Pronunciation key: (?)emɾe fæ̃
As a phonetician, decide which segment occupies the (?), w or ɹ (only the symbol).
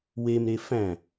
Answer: w